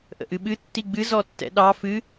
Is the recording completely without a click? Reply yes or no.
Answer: yes